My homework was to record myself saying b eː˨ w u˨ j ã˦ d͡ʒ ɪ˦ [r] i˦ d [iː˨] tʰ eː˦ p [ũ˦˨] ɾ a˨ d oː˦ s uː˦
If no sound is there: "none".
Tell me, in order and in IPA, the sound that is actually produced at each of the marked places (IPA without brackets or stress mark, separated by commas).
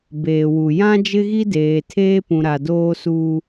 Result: ɣ, eː˨, ũ˨